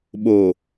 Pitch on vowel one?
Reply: low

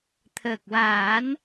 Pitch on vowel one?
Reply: low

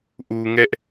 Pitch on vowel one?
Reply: low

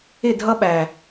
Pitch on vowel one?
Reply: falling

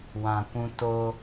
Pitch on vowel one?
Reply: low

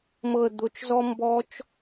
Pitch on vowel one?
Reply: low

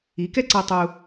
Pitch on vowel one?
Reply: rising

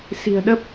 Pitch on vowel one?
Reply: low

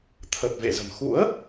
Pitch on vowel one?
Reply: low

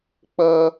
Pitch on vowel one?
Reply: high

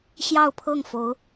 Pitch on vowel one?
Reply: falling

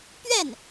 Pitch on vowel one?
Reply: falling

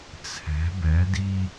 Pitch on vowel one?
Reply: rising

